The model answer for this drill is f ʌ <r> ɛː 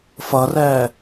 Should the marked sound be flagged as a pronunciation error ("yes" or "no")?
no